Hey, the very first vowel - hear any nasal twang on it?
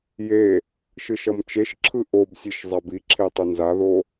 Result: no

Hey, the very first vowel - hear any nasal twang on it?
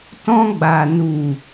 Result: yes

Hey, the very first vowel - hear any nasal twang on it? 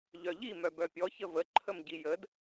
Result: no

